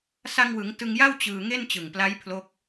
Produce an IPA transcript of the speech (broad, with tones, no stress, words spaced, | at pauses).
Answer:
sa˧ŋwɯ˩˦ŋ tɯ˧ŋja˥˩w t͡ɕɯː˧ ŋe˥˩nt͡ɕɯ˨˩ŋpla˦˥j pʰlo˦˥k̚